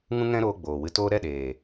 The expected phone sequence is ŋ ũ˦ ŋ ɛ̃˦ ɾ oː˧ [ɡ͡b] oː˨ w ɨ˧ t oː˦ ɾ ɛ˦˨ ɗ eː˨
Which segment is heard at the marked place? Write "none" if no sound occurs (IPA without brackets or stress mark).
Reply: ɡ͡b